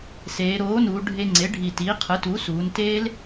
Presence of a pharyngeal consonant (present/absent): absent